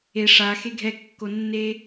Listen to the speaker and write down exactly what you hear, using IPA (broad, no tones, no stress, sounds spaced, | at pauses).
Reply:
e ʂ a x e ɡʱ ɛ kː o nː e